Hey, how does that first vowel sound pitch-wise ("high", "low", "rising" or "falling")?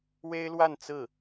high